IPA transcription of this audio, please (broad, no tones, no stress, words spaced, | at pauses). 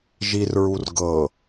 ʒir ɹurɡɤ